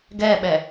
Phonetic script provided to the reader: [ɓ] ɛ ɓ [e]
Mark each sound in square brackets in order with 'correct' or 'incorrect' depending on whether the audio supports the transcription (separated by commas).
incorrect, incorrect